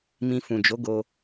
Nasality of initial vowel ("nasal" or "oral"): nasal